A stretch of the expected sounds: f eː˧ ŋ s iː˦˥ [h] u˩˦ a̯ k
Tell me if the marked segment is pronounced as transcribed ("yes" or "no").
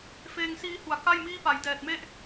yes